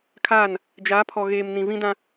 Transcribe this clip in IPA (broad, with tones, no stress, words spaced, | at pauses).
kʰaː˦˨n | d͡ʒaː˨˦pʰɔ˨ɣeː˨m nĩ˨vĩ˦dã˦